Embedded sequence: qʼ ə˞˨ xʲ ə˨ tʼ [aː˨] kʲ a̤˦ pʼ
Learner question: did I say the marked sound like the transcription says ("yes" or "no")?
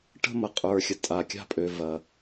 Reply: no